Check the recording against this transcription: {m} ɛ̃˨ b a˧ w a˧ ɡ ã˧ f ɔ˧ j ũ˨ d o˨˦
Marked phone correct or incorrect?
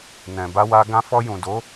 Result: incorrect